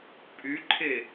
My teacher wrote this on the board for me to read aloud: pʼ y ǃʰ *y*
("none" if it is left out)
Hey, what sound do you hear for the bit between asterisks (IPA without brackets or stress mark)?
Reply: e